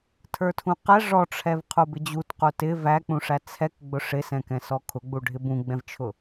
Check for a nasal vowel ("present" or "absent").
present